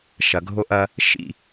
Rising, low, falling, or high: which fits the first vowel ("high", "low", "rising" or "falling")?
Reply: low